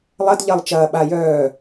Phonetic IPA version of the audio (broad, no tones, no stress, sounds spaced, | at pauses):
lˠ ɐ d ʎ ɐ lˠ t͡ʃ ɐː ɓ a j œː